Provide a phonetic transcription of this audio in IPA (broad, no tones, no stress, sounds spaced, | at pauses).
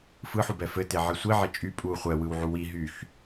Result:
f ɯ ħ u b ɛ f ɘ t e ʕ i sʷ i ʕ e t͡ʃʼ y pʼ u χʷ ɛ w ɯ w ʕ u w i ɦ y x